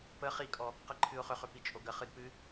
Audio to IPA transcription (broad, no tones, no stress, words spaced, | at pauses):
pə χikʼɔ | qəǃʰɨʊ̯χʏχʏ pit͡ʃʼoɡəχɨd pɨ